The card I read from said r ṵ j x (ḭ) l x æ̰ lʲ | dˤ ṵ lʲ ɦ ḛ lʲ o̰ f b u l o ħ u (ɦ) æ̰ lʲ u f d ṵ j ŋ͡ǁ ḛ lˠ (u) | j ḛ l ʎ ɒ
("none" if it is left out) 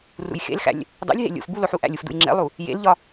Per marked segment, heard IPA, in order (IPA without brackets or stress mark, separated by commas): ḛ, ʔ, u